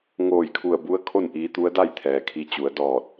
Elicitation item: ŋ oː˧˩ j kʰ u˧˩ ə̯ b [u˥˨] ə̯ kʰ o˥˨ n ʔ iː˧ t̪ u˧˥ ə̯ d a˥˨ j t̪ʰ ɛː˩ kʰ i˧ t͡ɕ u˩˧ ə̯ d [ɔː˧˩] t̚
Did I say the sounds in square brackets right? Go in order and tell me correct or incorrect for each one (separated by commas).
incorrect, correct